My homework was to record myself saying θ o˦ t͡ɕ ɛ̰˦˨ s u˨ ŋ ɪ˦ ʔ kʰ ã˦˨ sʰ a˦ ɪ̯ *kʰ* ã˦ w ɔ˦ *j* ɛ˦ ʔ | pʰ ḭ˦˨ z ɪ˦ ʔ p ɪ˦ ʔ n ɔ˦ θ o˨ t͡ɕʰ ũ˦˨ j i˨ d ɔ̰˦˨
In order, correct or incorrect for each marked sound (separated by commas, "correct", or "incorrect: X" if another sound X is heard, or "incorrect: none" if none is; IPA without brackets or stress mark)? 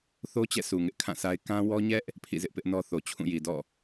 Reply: incorrect: k, incorrect: ɲ